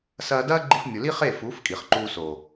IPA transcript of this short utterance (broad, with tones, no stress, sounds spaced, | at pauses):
s ɐː˧ d ɐː˦ ɡ͡ǃ i˧ f mʲ o˨ l i˦ χ eː˦˨ f uː˨˦ f kʼ i˨ χ ǃ uː˧ s o˨